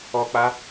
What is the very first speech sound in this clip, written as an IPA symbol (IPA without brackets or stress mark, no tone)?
ɔ